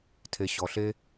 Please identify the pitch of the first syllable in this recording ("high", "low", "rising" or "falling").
low